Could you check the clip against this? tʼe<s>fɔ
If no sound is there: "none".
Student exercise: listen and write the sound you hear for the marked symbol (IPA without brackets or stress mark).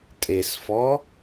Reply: s